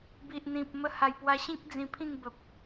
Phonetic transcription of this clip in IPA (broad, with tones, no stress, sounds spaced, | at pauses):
b i˨ ʔ n̪ ĩ˨ p̚ m ə˧ h a˨˩ j p w a˧ ɕ ĩ˦ k̚ d͡z ĩ˧ pʰ ĩ˥˧ ŋ b ə˨ p̚